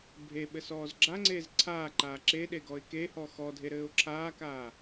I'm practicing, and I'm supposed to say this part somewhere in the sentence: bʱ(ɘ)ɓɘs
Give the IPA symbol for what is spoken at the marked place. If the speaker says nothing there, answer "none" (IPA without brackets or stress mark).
e